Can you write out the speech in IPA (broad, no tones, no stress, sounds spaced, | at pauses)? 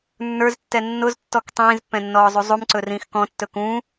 nː ə˞ z tː ɛ nː ʊ z tː ɔ k tˤ ĩː z pː ɛ̃ nː ɔː zˤ u zˤ u m ǀ ɵ r ĩː x k ɔ̃ tː ɵ k ũ